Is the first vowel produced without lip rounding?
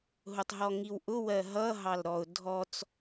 no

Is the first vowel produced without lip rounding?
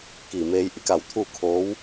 yes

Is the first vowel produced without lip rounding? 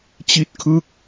yes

